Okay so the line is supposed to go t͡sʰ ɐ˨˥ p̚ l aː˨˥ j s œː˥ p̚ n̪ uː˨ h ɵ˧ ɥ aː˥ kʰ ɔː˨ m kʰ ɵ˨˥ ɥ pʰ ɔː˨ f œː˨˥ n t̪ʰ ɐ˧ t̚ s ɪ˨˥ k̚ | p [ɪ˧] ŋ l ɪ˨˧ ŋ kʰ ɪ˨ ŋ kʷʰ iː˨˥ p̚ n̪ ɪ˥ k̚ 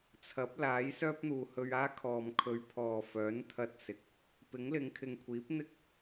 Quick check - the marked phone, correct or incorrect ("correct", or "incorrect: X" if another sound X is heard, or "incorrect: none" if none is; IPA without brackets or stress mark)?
incorrect: ɪ˨˥